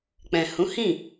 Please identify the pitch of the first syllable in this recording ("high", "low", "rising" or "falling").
low